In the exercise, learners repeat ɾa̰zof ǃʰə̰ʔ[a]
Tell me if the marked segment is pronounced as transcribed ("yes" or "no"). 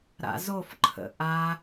yes